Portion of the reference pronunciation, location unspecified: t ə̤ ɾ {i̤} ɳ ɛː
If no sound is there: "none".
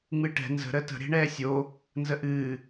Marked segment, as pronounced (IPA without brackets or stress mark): e̤